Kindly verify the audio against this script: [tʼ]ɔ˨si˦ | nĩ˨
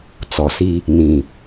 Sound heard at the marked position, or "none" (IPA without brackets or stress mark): t͡s